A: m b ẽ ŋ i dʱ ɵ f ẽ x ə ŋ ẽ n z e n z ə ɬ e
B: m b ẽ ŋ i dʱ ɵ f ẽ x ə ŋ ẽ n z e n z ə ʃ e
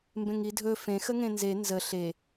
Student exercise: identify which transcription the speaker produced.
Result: A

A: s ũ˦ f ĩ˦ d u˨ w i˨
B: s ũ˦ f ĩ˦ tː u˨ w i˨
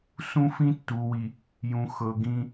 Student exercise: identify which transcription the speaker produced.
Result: B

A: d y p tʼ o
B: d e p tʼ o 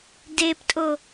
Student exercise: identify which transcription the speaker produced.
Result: B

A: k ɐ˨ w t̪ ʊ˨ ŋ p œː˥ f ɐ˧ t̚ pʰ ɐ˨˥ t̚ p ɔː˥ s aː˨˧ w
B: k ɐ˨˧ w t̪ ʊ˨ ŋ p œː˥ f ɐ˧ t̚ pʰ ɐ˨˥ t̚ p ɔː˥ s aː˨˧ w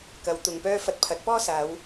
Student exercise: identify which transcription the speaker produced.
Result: B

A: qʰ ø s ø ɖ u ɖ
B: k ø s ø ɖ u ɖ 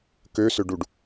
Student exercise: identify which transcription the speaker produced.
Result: B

